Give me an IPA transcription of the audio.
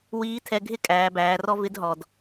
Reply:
w iː˧˥ tʰ ɛ˧ ɡʱ ɪ˥ kʼ æː˩˧ b æː˩˧ r ɔ˥ v ɪ˧˥ d ɦ ɔ˩ d

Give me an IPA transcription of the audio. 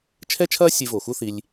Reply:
t͡ʃʰ ɛ˦ t͡ʃʰ ɐː˦ sʲ e˧ v o˨ x u˦ θ i˧ lʲ

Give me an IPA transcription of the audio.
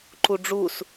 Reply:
ǃ u ɖ͡ʐ u s

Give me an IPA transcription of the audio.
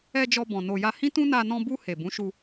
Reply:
ɛ˧ d͡ʒ ɔ˧ b ɔ̃˨ n o˨ j a˧ h ĩ˦ t ũ˦ n a˧ n ɔ̃˧ b u˧ h e˨ b ũ˨˦ ʃ u˧

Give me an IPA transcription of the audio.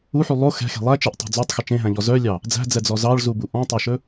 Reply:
u ħ y lˠ o x ɛ̤ x e̤ lˠ æ t͡ʃ e ʔ tˤ ɛ̤ d͡z o tˤ x ɵ t͡ʃ ẽ ɦ æ̃ ʎ ɔ z œ lʲ ɑ | d͡z æ̤ d͡z ɛ d͡z ɔ z ɑ ɭ z u b u ʔ ɔ̃ tˤ œ ʃ ɵ

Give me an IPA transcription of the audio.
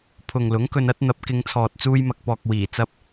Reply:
pʰ ʊ˨ ŋ l ʊ˨˥ ŋ k ɵ˧ n ɐ˥ t̚ n̪ ɐ˨˥ p̚ k ɪ˨˧ ŋ t͡sʰ ɔː˨ t̚ t͡s uː˧ j m ɐ˨ k̚ p ɔː˨ k̚ w iː˨˩ t͡s ɐ˧ p̚

